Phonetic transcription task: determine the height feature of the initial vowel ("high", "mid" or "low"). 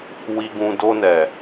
high